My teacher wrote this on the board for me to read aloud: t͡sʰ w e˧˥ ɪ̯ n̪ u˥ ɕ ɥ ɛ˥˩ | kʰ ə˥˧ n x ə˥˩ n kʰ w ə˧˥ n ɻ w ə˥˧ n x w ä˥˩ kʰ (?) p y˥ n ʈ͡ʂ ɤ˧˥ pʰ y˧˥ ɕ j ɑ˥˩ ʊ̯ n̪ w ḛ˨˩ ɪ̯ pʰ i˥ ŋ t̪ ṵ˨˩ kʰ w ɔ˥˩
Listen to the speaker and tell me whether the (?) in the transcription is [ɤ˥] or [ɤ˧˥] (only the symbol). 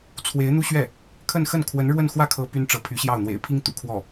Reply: ɤ˧˥